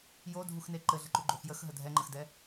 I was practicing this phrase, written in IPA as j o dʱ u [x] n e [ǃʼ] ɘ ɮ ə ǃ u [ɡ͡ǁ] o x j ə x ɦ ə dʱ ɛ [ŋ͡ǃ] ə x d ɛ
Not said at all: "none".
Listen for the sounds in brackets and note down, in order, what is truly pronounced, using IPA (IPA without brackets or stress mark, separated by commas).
x, ǃ, ɡ͡ǃ, ŋ͡ǃ